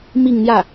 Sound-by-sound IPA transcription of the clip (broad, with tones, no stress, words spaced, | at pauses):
mi˥˧ŋn̪jä˥˩